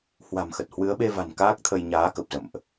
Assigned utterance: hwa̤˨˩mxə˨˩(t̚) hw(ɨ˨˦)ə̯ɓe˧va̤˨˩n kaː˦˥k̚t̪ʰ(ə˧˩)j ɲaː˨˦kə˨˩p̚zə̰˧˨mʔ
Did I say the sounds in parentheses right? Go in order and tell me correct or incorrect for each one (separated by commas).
correct, correct, incorrect